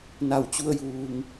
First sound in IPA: n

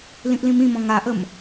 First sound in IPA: l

